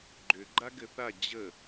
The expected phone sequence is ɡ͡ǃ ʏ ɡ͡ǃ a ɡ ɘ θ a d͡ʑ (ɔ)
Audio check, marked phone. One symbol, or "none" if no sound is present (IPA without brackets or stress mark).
ə